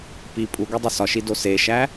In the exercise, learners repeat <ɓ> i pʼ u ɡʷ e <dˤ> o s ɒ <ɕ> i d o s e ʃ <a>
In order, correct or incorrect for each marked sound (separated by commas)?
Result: incorrect, correct, incorrect, incorrect